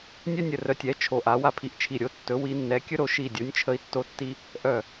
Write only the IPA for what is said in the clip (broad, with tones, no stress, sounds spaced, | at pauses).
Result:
nʲ œ˦ nʲ ə˧˩ r œ˧˩ tʲ ɛ˨˦ t͡ʃʰ o˧˩ ʔ a˨˦ w a˦ pʰ i˧˩ ʔ t͡ʃʰ i˧˩ ɾʲ o˨˦ tː ɵ˨˦ w i˨˦ nː ɛ˨˦ kʲ ɵ˦ ɾ o˧˩ ʃ i˧˩ dʲ o˨˦ nʲ t͡ʃʰ ə˦ i̯ tː o˦ tː i˦ | ʔ œ˧˩